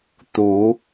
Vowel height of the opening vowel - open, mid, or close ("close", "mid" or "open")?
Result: close